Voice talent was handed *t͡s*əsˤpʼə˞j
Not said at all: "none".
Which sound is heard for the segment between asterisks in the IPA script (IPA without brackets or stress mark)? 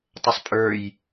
tˤ